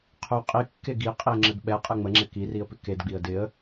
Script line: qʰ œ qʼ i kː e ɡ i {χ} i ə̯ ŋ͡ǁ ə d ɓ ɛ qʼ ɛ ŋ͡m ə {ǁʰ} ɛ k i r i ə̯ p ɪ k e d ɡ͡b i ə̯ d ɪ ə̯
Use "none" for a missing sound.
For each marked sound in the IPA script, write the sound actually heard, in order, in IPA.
qʼ, ŋ͡ǁ

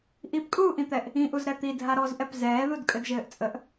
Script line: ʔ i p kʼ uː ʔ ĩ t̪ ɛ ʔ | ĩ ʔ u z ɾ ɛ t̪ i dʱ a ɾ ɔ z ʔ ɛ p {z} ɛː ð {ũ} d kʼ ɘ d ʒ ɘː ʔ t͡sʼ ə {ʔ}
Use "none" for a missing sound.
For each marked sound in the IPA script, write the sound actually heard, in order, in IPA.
z, u, ʔ

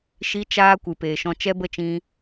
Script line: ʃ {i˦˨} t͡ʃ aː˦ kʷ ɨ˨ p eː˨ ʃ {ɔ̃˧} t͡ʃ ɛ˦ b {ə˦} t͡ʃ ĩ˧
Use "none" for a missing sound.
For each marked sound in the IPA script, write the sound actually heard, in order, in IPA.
i˦, ɔ̃˧, ə˦

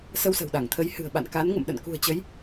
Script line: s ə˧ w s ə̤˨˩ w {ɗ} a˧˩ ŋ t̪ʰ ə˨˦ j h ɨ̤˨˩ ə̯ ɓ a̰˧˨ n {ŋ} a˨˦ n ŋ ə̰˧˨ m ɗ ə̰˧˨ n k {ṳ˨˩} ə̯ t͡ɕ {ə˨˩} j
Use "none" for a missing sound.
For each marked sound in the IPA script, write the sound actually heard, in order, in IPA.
ɗ, k, ṳ˨˩, ə˨˦

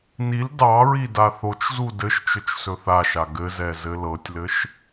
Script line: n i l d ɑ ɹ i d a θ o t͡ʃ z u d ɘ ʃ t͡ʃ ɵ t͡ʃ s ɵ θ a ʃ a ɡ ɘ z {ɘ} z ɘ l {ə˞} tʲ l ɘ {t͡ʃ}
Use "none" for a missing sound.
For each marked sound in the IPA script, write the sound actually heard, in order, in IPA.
ɛ, ɤ, ʃ

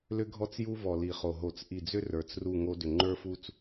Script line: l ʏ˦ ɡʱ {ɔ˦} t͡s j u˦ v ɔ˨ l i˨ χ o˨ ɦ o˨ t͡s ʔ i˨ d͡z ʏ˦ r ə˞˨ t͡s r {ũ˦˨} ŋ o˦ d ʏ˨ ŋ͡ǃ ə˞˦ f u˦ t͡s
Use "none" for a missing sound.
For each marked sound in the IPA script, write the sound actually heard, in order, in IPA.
ɔ˦, u˦˨

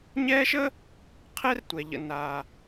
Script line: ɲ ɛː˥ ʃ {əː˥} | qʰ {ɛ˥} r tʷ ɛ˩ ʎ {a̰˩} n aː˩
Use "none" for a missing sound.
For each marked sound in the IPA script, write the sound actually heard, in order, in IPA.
əː˥, ɛ˥, ə̰˩

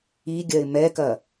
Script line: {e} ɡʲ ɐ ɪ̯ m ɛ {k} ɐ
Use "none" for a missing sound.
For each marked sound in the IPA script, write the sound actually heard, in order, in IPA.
i, k

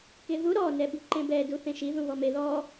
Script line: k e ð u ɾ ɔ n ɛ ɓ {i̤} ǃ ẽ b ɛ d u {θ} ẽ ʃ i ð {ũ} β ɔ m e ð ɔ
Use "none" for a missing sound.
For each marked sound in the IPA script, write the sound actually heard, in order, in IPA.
i̤, θ, ũ

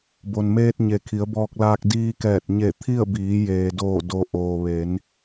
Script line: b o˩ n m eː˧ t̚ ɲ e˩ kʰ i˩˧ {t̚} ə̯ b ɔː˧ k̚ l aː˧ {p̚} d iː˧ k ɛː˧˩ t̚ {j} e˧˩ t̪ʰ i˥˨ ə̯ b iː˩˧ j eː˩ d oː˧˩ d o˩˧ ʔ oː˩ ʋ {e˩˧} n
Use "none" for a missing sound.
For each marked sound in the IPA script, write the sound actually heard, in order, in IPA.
none, k̚, ɲ, e˩˧

